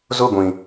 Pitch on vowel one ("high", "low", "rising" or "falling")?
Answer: falling